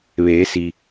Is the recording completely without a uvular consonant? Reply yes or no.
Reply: yes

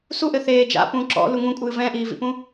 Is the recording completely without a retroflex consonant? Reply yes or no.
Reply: yes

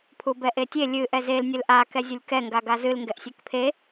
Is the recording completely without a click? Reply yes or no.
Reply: yes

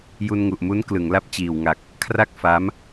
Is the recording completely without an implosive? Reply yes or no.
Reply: yes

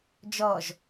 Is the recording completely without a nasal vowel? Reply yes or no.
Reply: yes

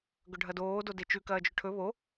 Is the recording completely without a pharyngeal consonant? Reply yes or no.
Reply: yes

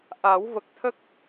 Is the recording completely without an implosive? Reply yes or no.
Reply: yes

